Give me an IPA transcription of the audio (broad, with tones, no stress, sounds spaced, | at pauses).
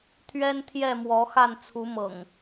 t̪ʰ ɥ ɛ˦ n t̪ʰ j ɛ˥˨ m w ɔ˨˦ x a˥˨ n t͡sʰ u˨˦ m ɤ̰˨˩ ŋ